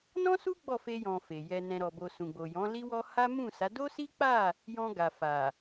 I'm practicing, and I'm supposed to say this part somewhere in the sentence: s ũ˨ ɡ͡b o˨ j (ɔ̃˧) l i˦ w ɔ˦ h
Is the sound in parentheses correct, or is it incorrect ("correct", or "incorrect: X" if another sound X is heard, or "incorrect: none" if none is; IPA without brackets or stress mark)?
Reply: incorrect: ɔ̃˨˦